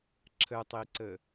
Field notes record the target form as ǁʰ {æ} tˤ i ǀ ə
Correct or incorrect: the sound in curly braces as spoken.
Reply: incorrect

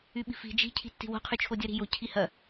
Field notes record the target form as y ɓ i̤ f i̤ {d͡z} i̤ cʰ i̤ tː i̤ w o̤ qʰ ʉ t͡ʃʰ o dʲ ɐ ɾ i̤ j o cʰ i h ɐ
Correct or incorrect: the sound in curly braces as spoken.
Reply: incorrect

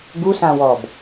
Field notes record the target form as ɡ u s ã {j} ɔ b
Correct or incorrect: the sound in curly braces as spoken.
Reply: incorrect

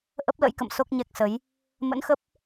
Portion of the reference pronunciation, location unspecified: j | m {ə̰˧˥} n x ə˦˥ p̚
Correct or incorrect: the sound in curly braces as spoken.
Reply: correct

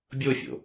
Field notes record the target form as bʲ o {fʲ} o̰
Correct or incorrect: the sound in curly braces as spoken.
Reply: correct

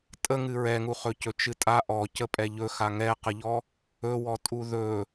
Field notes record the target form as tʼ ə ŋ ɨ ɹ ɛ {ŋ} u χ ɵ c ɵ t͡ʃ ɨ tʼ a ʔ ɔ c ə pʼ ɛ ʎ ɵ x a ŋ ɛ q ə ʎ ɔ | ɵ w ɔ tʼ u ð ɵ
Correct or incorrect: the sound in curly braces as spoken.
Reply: correct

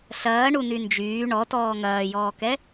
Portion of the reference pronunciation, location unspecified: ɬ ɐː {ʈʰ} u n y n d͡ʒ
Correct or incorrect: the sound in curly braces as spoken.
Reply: incorrect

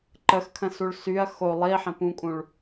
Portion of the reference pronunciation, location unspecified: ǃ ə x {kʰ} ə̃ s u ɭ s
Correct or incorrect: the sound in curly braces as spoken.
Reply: correct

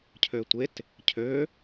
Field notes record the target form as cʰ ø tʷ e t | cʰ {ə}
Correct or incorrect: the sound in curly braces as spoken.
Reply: incorrect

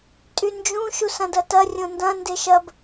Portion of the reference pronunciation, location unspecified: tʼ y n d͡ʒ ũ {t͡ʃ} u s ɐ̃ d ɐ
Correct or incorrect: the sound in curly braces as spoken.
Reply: incorrect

